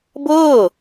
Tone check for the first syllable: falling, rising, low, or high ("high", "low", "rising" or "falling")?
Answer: falling